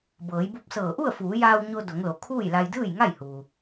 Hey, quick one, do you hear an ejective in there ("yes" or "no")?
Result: no